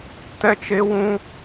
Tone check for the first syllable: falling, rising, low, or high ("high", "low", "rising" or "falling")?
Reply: high